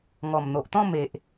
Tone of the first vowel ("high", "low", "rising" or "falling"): low